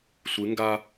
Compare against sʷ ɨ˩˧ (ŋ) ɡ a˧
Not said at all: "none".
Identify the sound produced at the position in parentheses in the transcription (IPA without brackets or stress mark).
ŋ